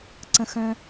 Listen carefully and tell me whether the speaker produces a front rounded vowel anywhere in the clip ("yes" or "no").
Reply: yes